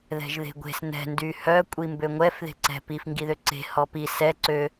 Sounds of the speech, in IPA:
ðɛ̤ʒðe̤ɡʷe̤s nɛ̤ ndyhœ kʷʼimbøŋʷɛf ðe̤ǀɛ̤ pif ŋɡiðøǀe̤ hɔpi sɛ ǀø

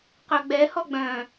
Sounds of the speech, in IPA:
qœɡ͡bɛ hɔɡ͡bœ̃

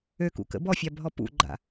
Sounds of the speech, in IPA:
økṵkə̰ bɔfʲabʱɔ pṵɡ͡ǃa̰

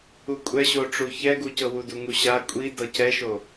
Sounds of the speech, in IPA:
ukʷʼɛɕoʈ͡ʂu çɛɡucɤ wuduŋuɕa kʷʼi dɤcɛʃo

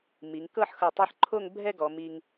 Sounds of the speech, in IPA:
mi˩˧ŋkɤ˥˧ħxɤ˧˩ tˤɛ˥ħ ǃʰo˥˧ŋbʱɛ˥˧ɡɔ˩˧ mi˧ŋ

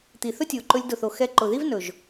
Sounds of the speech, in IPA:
t̪i˨θɵ˦tʲo˨ ǃɵ˧lʲdʊ˨θo˨ xɛ˧ǃʊ˨ði˦v nɵ˨ʒ

